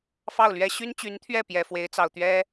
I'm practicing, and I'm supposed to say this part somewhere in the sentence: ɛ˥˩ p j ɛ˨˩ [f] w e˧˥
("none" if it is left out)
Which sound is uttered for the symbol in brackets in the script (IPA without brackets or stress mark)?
f